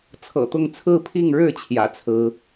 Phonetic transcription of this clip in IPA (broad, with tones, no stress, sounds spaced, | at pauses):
t͡sʰ ɤ̰˨˩ t̪ ʊ˥˨ ŋ t͡sʰ ɹ̩˥˨ pʰ i˥˨ ŋ ɻ ɻ̩˥˨ t͡ɕʰ j ä̰˨˩ t͡sʰ ɹ̩˨˦